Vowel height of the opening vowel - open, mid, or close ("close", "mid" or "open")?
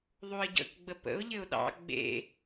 close